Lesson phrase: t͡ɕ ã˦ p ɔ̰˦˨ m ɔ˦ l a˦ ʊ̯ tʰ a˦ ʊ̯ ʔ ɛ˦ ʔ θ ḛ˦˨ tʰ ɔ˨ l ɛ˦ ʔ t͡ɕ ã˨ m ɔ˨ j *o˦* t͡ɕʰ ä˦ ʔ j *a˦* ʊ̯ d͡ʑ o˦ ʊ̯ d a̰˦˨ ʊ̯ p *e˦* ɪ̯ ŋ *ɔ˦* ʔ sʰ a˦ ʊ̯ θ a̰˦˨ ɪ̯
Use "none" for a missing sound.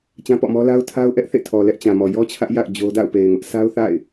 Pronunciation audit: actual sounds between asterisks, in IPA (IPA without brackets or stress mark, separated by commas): ɔ˦, a̰˦˨, e˨, ʊ˦